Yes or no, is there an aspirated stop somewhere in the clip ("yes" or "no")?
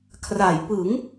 yes